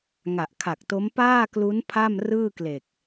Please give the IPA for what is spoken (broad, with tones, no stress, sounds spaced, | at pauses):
ŋ a˨˩ ʔ kʰ a˨˩ k̚ t o˦˥ m p aː˥˩ k l u˦˥ n pʰ a˥˩ m r ɯː˥˩ k l e˨˩ k̚